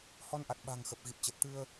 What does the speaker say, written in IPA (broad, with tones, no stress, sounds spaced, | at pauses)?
h ɔ˧ n ʔ a˨˩ t̚ ɓ a̤˨˩ ŋ x ə˨˩ p̚ ɣ i˨˩ p̚ t͡ɕ ə˨˩ t̚ t̪ ɨ˧ ə̯